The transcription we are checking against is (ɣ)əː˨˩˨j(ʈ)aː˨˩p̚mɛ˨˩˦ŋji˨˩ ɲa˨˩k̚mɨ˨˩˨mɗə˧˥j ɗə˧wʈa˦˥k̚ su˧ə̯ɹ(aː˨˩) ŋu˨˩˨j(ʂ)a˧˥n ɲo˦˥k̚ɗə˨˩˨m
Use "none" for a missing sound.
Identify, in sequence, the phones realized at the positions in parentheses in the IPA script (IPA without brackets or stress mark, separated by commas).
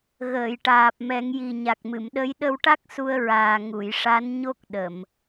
ɣ, ʈ, aː˨˩, ʂ